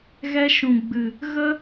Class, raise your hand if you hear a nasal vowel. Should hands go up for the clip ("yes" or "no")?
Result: yes